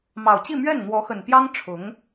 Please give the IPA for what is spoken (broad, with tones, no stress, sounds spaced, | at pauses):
m ɑ˨˩ ʊ̯ t͡ɕ i˥˧ m ɥ ɛ˥˩ n n̪ w ɔ˧˥ x ə˨˩ n p j ɑ˥ ŋ ʈ͡ʂʰ ʊ˧˥ ŋ